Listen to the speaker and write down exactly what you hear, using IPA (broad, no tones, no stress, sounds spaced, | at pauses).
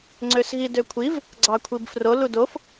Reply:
ŋ͡ǀ ø s ɣ i d ø kʷʰ i v | ɡ͡ǀ ɑ kʷʰ i b f r o l u d o f